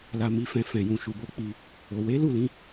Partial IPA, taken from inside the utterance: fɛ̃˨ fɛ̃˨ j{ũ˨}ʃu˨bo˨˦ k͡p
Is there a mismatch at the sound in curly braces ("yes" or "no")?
no